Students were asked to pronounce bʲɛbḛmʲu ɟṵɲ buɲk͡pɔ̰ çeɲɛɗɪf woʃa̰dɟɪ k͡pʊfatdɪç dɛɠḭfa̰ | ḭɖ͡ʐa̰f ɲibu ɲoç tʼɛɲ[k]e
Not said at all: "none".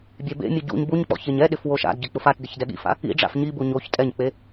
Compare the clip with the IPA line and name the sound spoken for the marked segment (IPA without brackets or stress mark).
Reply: k͡p